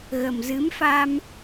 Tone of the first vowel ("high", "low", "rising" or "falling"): low